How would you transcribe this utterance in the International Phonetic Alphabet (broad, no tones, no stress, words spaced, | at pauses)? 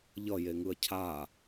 ʎʌ jeŋɯɐ̯cʰa